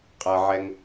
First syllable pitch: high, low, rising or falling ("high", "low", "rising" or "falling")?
low